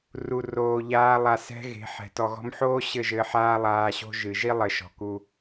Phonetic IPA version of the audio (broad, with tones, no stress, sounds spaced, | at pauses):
r u˨ r oː˨ ʎ aː˧ lˠ a˨ s ɛ̤˧ ɣ e̤˨˦ ħ ɛ̤˨ t ɔ˨ ɣ ɔ̤˧ m ħ oː˦ ɕ ɘ˦˨ ʒ ɘ˧ ħ aː˦ lˠ aː˧ ɕ o̤˦ ʒ ɨ˨ ʒ i˦ lˠ ɘ˨ ʃ ɔ̤˨ k u˧